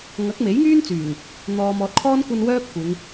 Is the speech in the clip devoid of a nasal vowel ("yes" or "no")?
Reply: yes